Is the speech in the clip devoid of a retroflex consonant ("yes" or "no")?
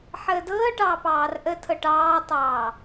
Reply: no